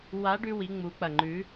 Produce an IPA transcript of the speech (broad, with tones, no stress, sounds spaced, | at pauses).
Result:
w a˧˥ ɖ ʉ˧ w i˩˧ ŋ͡m u˩˧ k͡p ɐ˩ ŋ͡ǃ ʉ˩˧